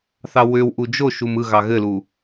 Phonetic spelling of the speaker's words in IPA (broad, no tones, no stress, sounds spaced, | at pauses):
θ ɑ w ʏ w ʔ u d͡ʒ o ʃ u m ɯ ɣ ɑ ɣ ɘ l u